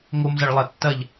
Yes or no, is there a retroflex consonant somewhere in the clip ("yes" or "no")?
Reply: yes